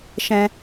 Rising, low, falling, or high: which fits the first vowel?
high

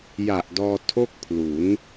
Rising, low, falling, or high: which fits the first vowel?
low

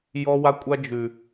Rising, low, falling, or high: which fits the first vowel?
high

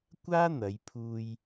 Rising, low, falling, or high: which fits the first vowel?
high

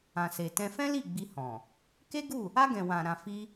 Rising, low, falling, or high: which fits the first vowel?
low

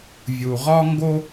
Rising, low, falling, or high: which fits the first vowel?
low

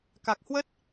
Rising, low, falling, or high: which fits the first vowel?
low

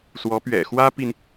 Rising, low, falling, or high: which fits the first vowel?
rising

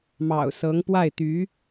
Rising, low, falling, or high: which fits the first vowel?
low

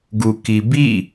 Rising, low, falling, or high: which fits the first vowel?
low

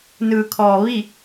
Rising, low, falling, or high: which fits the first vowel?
low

